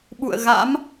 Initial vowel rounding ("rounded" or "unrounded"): rounded